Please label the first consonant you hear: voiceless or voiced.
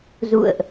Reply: voiced